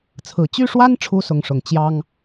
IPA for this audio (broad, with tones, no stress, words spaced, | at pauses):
t͡sʰɹ̩˨˩ t͡ɕy˥˩ʂwa˥nʈ͡ʂʰu˧˥ sʊ˧˥ŋʂʊ˨˩ŋ t͡ɕjɑ˥ŋ